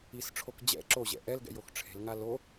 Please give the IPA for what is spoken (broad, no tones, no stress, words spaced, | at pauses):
isʈ͡ʂʰok d͡ʑɛ̰ ǁoʑɛ̰ ʔɛlɡɛ̰j oxʈ͡ʂʰe̤lŋa lo